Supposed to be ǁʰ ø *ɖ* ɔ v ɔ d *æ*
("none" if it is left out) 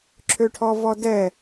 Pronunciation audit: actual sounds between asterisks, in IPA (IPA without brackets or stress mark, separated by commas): ʈʰ, ɛ